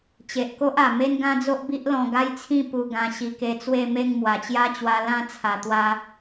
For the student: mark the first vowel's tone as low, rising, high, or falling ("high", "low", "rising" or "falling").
low